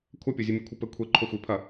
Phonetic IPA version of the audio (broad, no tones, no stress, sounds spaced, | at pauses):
kʷʰ ɐ pʲ o zʲ ɨ mʲ o kʷʰ ɨ p ɘ kʷʰ e ǃʰ o xʷ i pʰ ɐ